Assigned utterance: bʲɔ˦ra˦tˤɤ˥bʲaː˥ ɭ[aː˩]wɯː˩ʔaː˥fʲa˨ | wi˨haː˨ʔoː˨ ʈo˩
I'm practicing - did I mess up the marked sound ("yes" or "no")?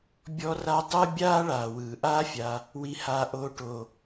no